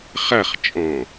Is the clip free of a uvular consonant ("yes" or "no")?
no